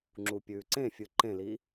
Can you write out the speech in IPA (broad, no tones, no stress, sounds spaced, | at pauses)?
ŋ͡ǁ u pʲ ʉː ǀ ẽ fʲ ɨ ǃ ẽ l i